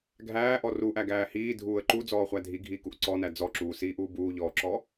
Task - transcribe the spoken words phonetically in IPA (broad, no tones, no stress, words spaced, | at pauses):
ɡʱæːʔɔ ruʔæɡæː hiːdʱuːə̯ ǃud͡zɔːχʷæ dʱiɡʱiːkuʔ ǀɔnæ d͡zɔǁuːsiːʔuː buːʎɔːǁɔ